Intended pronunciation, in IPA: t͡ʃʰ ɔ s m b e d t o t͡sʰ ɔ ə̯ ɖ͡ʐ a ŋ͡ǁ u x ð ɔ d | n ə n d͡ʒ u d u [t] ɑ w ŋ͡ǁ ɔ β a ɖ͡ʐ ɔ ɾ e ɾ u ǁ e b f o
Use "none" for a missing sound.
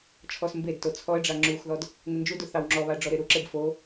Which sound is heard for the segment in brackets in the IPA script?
θ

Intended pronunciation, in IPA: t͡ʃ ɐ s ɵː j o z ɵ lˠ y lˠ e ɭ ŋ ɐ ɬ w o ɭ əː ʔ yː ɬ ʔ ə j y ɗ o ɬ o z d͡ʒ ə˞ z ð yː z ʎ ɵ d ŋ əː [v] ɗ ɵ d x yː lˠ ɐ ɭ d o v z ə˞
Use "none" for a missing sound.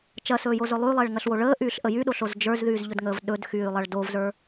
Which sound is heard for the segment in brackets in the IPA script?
v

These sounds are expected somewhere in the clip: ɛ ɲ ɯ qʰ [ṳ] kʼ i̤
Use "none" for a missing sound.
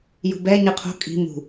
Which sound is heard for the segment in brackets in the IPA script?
o̤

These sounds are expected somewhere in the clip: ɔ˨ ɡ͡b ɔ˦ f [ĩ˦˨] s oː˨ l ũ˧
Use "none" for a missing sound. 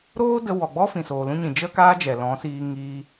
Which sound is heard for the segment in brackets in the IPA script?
ĩ˨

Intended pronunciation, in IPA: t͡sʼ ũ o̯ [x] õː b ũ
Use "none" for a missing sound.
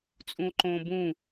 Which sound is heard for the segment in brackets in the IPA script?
ǃ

